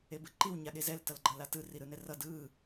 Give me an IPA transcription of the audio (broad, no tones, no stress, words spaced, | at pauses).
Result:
ebɯǃiw ɲaɠezɛl tʌlɡ͡ǃʌlatɯ riɾɯnɛrʌ dɯ